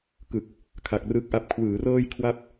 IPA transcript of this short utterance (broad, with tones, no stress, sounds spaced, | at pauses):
k ɯ˨˩ k̚ | kʰ a˨˩ k̚ r ɯ˦˥ k̚ ʔ a˦˥ p̚ kʰ w ɯː˩˦ r ɤː˥˩ j kʰ w a˥˩ p̚